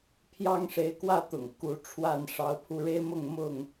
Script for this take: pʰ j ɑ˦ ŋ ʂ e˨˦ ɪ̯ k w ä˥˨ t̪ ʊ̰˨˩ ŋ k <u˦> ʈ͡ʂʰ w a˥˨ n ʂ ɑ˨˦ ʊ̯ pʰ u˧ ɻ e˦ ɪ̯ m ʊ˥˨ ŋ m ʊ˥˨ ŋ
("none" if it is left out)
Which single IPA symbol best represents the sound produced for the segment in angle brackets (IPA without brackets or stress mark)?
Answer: u˨˦